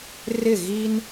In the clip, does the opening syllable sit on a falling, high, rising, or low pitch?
falling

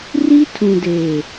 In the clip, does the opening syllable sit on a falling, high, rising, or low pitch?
high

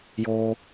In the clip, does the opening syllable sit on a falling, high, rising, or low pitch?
high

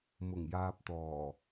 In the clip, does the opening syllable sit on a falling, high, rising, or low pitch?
low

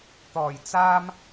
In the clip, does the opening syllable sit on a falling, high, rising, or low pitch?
low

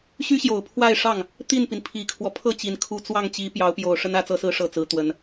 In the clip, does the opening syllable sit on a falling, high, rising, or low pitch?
high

